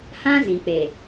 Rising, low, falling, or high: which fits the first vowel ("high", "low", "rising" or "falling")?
high